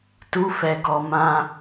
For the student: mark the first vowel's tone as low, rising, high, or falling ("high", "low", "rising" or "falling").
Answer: high